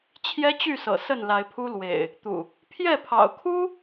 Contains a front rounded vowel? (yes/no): yes